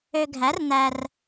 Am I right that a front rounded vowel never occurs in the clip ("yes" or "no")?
no